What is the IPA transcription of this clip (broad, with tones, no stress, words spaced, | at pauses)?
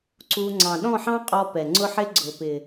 ǀu˧ ŋ͡ǀɑ̃˨ɗɔ̃˦˨ħɑ̃˦qʼɔ˧ pɛ˨ŋ͡ǀʊ˦ħɪ˦ ɡ͡ǀʊ˨pɪ˨